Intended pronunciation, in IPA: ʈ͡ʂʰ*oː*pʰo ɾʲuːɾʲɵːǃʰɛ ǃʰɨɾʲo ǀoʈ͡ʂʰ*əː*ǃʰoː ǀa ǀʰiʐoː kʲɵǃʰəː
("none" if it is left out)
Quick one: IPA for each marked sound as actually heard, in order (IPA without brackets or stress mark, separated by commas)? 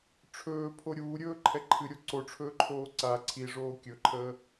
ɵː, ɵː